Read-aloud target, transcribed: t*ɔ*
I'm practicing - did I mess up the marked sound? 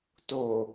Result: yes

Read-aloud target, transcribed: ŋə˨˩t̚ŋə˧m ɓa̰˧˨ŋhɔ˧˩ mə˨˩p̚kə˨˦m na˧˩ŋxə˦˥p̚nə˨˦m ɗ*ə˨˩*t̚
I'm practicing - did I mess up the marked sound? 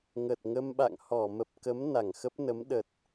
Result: no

